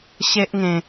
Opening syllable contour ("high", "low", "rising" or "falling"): high